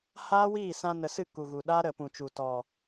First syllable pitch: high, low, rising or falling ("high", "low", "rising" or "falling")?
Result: high